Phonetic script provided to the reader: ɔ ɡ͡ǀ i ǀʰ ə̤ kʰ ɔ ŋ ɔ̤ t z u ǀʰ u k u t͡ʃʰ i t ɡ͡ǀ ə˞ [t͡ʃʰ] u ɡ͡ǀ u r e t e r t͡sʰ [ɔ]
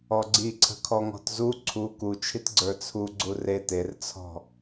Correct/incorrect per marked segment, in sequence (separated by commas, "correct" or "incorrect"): incorrect, incorrect